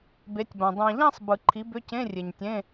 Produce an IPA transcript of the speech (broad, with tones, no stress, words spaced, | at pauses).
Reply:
be˨˥tʲbã˨ dˤã˨ʎã˥˧sˤ bɯ˨˩˦ǃʰi˨˥bʏ˧˥˧ cẽ˧˥˧ rʲe˨ɲtʲẽ˧˥˧